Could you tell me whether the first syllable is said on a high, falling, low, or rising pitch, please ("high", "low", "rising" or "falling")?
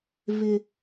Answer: high